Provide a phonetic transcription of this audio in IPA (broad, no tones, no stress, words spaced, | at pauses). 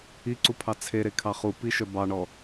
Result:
iǀupʰɑ t͡sʰeɾekʰɑ χupiʃœ bɑɳɔ